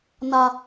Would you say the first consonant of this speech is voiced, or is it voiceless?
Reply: voiced